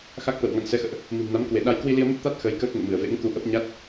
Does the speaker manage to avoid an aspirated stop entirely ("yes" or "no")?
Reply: yes